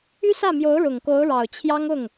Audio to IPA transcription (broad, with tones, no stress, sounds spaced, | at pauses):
y˥ s ä˥˩ m j o˧˥ ʊ̯ ɻ ʊ˨˩ ŋ k o˧˥ ʊ̯ ɻ ɑ˨˩ ʊ̯ t͡ɕʰ j ɑ˥ ŋ ʊ˥˩ ŋ